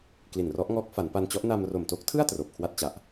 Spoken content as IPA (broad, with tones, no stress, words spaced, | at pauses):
kli˨˩nrɔ˦˥ʔŋɔː˦˥k̚ fa˩˦npa˧nt͡ɕɔ˦˥ʔ na˧mro˨˩mto˦˥k̚tʰɯ˥˩a̯ troː˨˩p̚kʰwa˥˩t̚t͡ɕa˨˩ʔ